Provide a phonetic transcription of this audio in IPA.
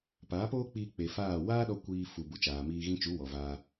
p aː˨˦ p oː˦ k͡p iː˧ k͡p e˨ f aː˦˨ w aː˦ ɗ ɔ˧ kʷ iː˧ f u˨ b u˨ t͡ʃ aː˨ m iː˧ ɣ ĩ˧ t͡ʃ u˨˦ w ɔ˨ v aː˧

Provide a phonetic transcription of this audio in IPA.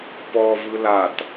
p ɔ v ɯ l a t

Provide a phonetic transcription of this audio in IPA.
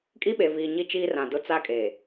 kʼ i˦ ɓ e˨ v iː˨ ɲ i˦ t͡ʃ iː˦ r ã˨ d ʊ˦ t͡s a˦ kʼ eː˨

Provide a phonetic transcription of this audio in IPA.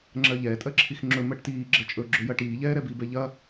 ŋ͡ǁ ɜ ʎ ɛː tʼ ɜ ǁʰ i x ŋ͡ǁ ɵ m ɜ ʈ t iː ɡ͡ǁ ɜ t͡ʃʼ ɵ ɡ͡ǁ ɵ j ɐ ʈ iː ʎ ɛː ɾ ɛ b i b ɛ ʎ ɐ

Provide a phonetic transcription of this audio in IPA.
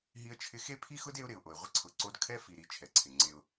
ɦ i˦ ə̯ t͡ʃʰ ɪ˦ x e˦ pʰ i˦ x ʊ˦ d e˦ ʊ̯ ɾ ɪ˨ ʊ̯ ʔ o˨ ɪ̯ ʁʷ ɪ˦ ǀʰ ʊ˨˦ ǀ o˦ d kʰ ɛ˦ f i˨ ɾ i˨ t͡ʃʰ ɛ˨ ǀʰ ɪ˨ ŋ͡ǀ e˦ ʊ̯

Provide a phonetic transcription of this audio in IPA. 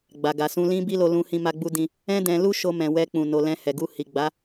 ɡ͡b a˨ ɡ a˨ s ũ˧ l ĩ˦ b i˦ l o˧ l ũ˧ h ĩ˧ m a˧ ɡ͡b u˧ d ĩ˧ | ɛ̃˦ d ɛ̃˧ l u˦ ʃ o˧ m ɛ̃˨ w ɛ˧ k͡p ũ˨ n o˨ l ɛ̃˧ h ɛ˨ ɡ u˧ h i˨ ɡ͡b a˨˦

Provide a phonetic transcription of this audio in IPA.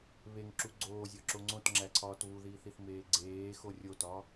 β e ŋ ǁ u ɡ͡ǀ oː zʲ ɒ ǁ o ŋ͡ǀ õ t ŋ͡ǁ æ ǀʰ ɒː t β u ð iː θ i θ m eː ɡ͡ǀ eː x o rʲ o t ɒː

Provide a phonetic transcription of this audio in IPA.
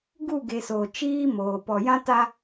ɡ u˦˨ ɡ e˨ s o˨ t͡ʃ iː˦ m oː˨ p ɔ˨ j ã˦ t a˦

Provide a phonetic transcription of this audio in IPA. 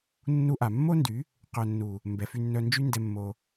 nː u˧ ʔ a˨ mː o˦ n d y˨˦ | q œ˨ nː u˨ | m b ɛ˨ f y˧ nː œ˧ n d͡ʒ y˦ n d ɛ˧ mː o˧

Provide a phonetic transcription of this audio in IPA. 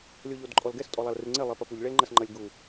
lʲ o ʎ o d ǃʼ ɔ l ɡ ɛ s tʼ ɔ lˠ a l r ɨ ŋ͡ǀ e lˠ i p ɐ p u ʎ ɭ e l ŋ͡ǃ ɐ s ŋ͡ǃ ɐ lʲ ɡ u

